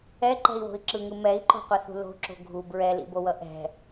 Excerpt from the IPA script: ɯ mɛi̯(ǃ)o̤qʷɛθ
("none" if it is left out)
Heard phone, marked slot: ǃ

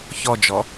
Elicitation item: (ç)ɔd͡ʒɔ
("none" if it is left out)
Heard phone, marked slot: ç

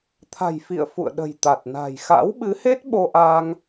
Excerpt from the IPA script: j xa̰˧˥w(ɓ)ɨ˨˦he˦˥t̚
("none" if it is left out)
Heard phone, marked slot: ɓ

